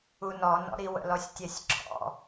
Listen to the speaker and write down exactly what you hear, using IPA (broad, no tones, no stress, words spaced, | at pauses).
unɔnɔ̰ɾi wə̰lɔsʲtʲɛsʲǁʰɔ̰